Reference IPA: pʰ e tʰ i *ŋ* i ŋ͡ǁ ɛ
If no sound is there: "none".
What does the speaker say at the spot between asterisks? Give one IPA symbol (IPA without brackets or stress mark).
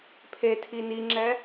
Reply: n